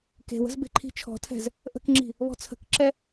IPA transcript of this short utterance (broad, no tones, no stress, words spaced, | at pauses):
ke̤wə̤z be̤ǃʰi̤t͡ʃʰɔ̤tʰɛ̤z | ʔə̤kŋ͡ǁi̤ | βɔ̤t͡sʰə̤kǁɛ